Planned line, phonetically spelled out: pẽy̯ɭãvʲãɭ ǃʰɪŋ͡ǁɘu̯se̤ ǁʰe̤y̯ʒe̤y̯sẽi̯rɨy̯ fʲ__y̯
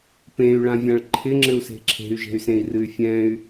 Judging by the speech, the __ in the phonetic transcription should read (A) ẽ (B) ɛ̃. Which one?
B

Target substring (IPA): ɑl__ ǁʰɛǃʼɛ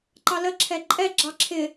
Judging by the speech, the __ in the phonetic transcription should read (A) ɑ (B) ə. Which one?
B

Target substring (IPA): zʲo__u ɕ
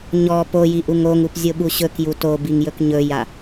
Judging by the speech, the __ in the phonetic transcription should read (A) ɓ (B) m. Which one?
A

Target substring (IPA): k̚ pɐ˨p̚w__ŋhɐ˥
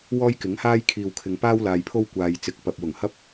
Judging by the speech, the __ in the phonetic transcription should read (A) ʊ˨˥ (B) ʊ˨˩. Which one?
B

